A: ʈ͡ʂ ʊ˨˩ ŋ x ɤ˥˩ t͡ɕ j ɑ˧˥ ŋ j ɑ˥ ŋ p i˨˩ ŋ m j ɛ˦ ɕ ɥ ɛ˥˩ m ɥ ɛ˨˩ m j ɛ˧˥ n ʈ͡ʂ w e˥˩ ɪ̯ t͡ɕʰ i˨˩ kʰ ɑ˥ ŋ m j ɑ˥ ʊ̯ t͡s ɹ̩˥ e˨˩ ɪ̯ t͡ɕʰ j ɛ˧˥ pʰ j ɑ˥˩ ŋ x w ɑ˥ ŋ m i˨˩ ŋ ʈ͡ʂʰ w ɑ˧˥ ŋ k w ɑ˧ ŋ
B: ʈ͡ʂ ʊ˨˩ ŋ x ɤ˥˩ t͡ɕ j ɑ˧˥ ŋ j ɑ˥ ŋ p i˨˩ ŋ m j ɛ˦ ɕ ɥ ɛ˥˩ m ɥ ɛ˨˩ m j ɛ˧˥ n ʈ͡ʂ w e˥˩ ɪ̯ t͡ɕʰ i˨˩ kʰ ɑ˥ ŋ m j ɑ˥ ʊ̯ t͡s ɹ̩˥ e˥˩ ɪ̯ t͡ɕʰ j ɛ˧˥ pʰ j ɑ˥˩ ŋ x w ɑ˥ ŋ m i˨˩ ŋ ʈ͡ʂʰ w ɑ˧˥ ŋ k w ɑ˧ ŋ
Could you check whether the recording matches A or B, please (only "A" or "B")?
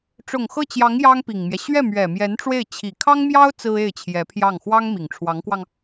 B